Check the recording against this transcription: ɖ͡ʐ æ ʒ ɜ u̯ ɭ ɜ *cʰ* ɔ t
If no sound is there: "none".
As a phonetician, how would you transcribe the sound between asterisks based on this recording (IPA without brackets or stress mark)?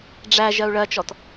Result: t͡ʃ